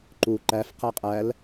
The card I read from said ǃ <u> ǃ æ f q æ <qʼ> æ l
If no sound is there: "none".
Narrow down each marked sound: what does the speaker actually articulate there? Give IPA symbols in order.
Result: u, qʼ

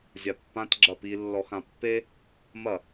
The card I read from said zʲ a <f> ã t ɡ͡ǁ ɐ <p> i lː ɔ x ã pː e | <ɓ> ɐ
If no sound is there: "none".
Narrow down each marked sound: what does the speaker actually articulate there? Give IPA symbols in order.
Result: pː, p, m

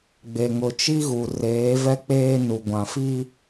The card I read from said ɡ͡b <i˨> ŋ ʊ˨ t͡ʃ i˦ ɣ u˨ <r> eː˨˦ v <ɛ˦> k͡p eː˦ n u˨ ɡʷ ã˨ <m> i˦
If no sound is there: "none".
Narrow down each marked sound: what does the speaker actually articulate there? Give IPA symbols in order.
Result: e˨, r, ɛ˦, f

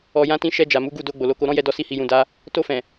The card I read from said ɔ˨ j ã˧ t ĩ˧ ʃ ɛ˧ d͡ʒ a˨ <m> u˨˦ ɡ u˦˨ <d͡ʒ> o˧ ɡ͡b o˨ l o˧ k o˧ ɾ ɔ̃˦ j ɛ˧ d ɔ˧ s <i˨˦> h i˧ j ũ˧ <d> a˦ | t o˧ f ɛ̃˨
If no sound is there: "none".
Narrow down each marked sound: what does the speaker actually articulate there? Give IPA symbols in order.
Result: m, d, i˦, d

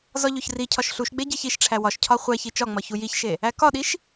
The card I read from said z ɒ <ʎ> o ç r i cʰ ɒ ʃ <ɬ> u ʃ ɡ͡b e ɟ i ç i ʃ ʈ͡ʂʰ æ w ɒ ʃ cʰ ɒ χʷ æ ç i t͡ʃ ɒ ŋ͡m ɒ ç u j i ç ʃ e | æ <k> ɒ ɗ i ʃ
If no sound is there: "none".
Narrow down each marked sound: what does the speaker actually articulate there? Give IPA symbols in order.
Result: ʎ, ɬ, k

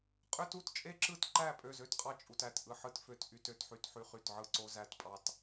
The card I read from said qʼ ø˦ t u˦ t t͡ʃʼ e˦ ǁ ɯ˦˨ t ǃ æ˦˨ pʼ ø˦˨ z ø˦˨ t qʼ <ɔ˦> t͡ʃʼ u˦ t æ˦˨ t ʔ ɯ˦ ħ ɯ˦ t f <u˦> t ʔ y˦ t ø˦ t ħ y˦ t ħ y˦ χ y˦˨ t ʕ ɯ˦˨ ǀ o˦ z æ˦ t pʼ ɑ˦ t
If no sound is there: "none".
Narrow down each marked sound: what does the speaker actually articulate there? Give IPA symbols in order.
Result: ɑ˦, ø˦

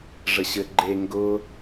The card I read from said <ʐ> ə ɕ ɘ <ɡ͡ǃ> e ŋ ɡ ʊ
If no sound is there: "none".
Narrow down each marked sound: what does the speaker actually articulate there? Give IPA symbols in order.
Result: ʐ, ɡ͡ǃ

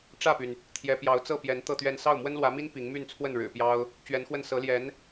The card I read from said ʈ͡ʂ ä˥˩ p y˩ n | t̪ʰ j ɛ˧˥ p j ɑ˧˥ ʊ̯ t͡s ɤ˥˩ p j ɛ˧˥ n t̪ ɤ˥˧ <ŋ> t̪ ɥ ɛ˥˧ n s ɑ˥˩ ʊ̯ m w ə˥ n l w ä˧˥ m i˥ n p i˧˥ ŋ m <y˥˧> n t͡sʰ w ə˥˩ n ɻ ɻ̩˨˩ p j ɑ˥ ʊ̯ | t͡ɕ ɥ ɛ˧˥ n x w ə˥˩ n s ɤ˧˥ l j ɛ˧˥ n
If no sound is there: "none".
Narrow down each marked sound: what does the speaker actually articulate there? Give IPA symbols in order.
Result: none, y˥˧

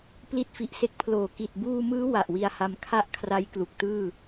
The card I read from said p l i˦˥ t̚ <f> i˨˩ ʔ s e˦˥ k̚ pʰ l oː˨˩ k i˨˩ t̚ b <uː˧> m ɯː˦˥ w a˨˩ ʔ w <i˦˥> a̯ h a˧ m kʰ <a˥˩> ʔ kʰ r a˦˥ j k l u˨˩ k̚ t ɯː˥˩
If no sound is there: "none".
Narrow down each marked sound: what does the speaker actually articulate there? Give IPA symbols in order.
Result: f, uː˧, i˧, a˥˩

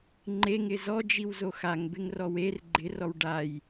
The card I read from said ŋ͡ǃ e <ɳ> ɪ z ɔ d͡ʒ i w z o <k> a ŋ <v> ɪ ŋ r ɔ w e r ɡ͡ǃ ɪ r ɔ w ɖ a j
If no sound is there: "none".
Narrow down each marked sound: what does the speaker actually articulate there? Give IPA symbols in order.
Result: ŋ, x, b

